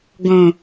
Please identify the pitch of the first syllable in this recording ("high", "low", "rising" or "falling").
low